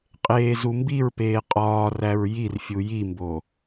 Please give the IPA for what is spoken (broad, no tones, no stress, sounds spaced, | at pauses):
qʼ eː z u m b i ɹ p eː qʼ ɒː r æ ɹ j i r fʲ u j i m b o